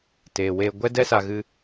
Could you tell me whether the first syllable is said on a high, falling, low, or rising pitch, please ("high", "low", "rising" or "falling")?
low